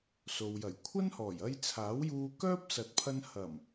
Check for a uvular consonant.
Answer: absent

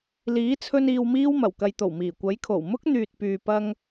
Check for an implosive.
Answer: absent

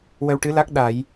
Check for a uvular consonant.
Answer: absent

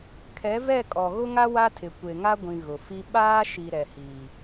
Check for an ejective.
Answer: present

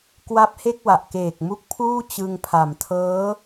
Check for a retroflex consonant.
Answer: absent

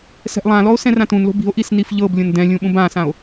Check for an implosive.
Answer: present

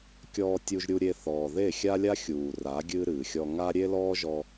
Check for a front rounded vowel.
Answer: absent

